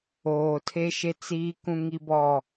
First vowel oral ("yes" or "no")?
yes